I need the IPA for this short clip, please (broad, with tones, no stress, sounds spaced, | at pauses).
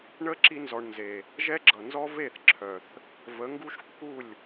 ɳ ə˦ ǁ i˧ n z ɔ˨ ɳ n z e˨ | ʒ ɛ˦ ɡ͡ǁ ʌ˨ n z ɔ˦ v e˦˨ θ ǁʰ œ˨ θ | v ə˨˦ ŋ ɡ u˦ ʃ kː u˦˨ lʲ